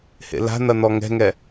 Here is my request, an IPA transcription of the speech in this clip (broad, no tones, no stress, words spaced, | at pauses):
hḛla̤n̪ɐ n̪ɔŋɛ̤ŋɛ